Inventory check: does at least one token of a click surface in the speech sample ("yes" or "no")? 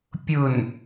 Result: no